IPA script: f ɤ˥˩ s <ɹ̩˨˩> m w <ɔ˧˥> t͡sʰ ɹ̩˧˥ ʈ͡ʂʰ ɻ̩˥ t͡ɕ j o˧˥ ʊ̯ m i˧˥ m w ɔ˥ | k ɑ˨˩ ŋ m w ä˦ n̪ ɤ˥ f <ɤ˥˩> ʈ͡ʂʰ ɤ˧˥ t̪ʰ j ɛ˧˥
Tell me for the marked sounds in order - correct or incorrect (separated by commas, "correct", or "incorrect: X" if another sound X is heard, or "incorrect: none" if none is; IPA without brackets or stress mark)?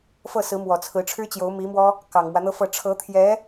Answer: incorrect: ɹ̩˧˥, incorrect: ɔ˨˩, correct